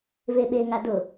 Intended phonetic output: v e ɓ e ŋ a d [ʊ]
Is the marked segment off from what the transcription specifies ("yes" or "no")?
no